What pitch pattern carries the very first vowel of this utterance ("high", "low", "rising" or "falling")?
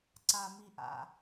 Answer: low